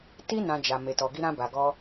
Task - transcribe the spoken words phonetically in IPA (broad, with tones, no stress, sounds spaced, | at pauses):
t i˦ n ã˧ d͡ʒ a˨ m e˨ t ɔ˨ ɡ i˧ ɾ ã˧ b a˨ ɡ ɔ˧